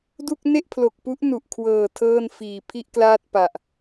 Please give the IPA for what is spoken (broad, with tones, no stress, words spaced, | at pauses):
du˥˩k̚ ne˥˩ʔpʰlo˨˩k̚pu˦˥ʔ nu˨˩ʔkʰwɤː˨˩ tʰɤː˥˩n fiː˨˩ pʰi˥˩ʔklaː˥˩t̚pa˨˩ʔ